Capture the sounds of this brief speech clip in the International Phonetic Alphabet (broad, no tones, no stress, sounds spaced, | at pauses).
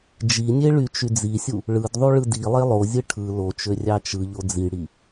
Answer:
d͡ʒ i nʲ e ɭ y t͡ʃ y d͡z i sʲ u | ɭ ɯ d ðˤ u ɭ ɯ d i lˠ e lˠ o zʲ ɯ ʈʰ ɯ l o t͡ʃ ø rʲ ɑ t͡ʃ ɯ ʎ o d͡z i ɽ i